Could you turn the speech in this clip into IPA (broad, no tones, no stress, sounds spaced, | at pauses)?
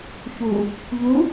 ç u | ʎ u